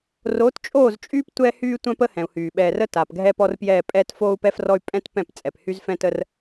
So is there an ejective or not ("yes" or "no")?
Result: yes